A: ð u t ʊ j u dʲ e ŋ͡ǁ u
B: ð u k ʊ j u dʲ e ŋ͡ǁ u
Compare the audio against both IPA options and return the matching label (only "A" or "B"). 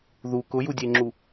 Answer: B